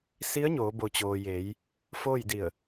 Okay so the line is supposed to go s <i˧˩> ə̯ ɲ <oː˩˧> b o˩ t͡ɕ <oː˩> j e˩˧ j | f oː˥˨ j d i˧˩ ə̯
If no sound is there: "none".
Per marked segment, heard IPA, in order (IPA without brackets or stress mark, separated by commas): i˧˥, oː˩˧, oː˩